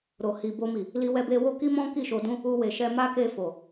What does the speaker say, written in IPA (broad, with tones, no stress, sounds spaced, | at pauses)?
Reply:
ɾ o˨ h i˨ b o˧ m i˨ | l i˧ w ɛ˧ b e˧ w o˦ k i˦ m ɔ̃˦ k i˦˨ ʃ o˧ d ũ˦ | u˧ w e˨ ʃ ɛ˧ m a˦ k e˦˨ f o˨